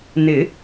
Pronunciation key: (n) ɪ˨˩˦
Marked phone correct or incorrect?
correct